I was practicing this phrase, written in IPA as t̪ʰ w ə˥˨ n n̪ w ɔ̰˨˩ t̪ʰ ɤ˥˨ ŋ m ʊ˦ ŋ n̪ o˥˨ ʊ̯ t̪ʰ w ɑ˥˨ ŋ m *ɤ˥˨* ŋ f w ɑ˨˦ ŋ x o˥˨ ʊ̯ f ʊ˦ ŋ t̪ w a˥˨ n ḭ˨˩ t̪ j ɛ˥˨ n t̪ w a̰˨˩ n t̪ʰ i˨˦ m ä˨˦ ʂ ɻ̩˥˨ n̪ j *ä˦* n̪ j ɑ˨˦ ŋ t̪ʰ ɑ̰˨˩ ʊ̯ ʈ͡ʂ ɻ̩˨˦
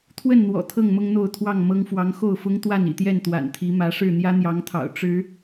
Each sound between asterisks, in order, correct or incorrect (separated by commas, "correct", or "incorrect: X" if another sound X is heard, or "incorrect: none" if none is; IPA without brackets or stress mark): incorrect: ɤ˦, correct